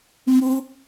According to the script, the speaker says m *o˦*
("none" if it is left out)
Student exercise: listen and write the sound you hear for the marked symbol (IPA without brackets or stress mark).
u˦